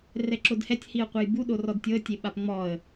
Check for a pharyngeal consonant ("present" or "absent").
absent